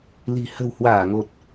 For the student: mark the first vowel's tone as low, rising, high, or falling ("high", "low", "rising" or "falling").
low